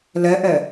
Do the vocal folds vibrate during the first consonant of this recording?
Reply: yes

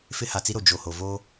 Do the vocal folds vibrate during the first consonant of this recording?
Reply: no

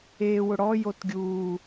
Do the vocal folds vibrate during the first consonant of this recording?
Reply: yes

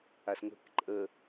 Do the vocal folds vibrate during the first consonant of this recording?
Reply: no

